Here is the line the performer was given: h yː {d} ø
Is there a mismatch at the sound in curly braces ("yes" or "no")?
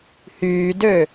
no